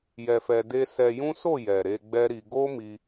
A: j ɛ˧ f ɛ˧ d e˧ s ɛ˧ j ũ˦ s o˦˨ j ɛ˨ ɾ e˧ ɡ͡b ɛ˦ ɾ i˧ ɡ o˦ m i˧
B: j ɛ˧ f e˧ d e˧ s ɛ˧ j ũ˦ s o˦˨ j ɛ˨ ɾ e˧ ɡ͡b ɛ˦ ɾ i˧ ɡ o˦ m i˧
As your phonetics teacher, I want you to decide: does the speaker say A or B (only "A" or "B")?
A